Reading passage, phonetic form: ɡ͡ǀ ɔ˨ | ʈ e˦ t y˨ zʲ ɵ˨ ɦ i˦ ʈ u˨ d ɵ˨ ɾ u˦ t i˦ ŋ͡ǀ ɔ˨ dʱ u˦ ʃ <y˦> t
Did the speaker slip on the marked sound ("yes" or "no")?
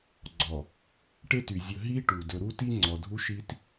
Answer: yes